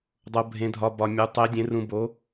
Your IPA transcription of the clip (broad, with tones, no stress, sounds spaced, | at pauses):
dˤ o˧ bʱ ẽ˧ dʱ ɒ˧ b ɒ˧ mʲ u˨˥ tˤ e˨˥ dʲ ẽ˨˥ r ũ˧ b o˨˥